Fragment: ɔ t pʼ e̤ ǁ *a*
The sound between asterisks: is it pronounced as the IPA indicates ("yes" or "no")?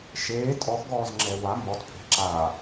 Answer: yes